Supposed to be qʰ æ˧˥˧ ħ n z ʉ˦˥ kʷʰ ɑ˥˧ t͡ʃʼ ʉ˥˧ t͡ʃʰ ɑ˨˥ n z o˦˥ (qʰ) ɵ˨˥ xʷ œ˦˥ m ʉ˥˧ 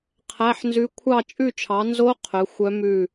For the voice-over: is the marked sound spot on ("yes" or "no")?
yes